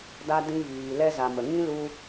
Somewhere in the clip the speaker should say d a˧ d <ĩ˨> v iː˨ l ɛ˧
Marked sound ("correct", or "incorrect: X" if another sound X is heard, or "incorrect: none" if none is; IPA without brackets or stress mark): incorrect: ĩ˧